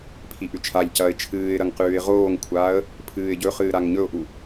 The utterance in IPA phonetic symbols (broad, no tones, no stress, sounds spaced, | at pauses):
pʰ i ʔ ʉ t͡ʃʰ a ʎ c ɐː ɪ̯ t͡ʃʰ ɨː ɪ̯ ɾ ɐ ŋ q ʉː ɪ̯ ʁ oː ŋ kʷʰ aː ə̯ | pʰ ɨː ɪ̯ ɟ ɵ χ ɨː ɾ a ŋ ɲ ɵ ʊ̯ ʔ u